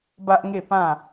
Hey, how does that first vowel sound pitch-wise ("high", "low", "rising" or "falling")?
high